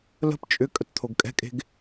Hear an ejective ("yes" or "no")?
yes